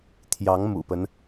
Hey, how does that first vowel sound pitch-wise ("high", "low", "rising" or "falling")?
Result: rising